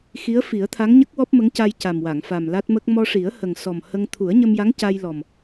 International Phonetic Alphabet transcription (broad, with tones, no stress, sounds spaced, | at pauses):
x i˧˥ ə̯ f i˨˩˦ ə̯ t̪ʰ a˧˥ ŋ ɲ ə˦˥ k̚ w ɔ˦˥ p̚ m ə˧˥ ŋ c a˧ j c a˨˩ m w a˨˩˨ ŋ f a˨˩ m l a˦˥ t̚ m ə˦˥ k̚ m ɔ˧ ʂ i˨˩˦ ə̯ h ə˨˩ ŋ s ɔ˨˩ m h ə˧ ŋ t̪ʰ u˨˩˦ ə̯ ɲ ə˧ m j a˧˥ ŋ c a˧ j l ɔ˨˩ m